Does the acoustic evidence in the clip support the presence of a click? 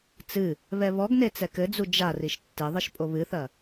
no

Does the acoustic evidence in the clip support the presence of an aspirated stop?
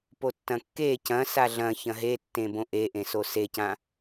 no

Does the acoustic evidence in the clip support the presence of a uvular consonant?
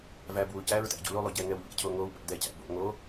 no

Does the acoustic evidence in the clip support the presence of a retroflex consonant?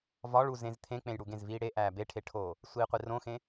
yes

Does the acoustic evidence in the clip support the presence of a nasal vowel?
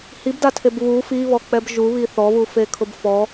no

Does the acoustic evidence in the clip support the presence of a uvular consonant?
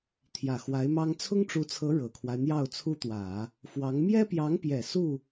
no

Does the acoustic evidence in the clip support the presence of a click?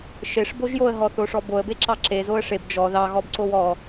yes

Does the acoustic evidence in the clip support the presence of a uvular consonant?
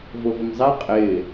yes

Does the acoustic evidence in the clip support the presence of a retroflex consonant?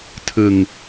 no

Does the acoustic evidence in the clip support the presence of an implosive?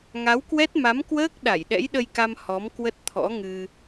yes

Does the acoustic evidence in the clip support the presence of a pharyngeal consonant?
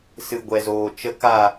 no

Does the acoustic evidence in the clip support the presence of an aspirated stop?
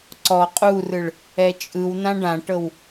no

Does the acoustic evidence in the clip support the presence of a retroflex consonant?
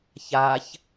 no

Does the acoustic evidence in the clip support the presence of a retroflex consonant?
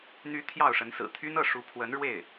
yes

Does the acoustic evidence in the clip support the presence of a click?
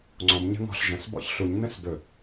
yes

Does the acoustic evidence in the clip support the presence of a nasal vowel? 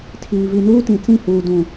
yes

